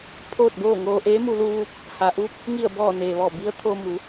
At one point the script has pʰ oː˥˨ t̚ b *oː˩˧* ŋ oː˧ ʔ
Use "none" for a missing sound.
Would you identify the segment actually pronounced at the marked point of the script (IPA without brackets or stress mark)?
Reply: oː˥˨